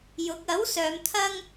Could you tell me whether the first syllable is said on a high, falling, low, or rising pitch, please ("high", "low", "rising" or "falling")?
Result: rising